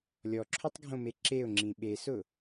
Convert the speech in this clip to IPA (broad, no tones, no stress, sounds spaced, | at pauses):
lʲ ɔ ǁʰ o tˤ ɡʱ õ m e ǁ e ʊ̯ ŋ͡ǁ ĩ ɓ e s ʊ